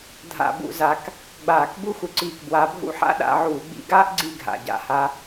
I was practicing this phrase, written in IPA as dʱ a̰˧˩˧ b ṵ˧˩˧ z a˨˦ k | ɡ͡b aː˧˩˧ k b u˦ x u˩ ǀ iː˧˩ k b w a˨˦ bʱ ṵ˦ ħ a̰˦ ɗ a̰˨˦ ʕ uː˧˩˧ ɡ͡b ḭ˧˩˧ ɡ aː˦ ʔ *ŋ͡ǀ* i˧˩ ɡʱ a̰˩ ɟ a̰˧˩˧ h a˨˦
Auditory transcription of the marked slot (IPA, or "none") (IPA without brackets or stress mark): ɡ͡ǀ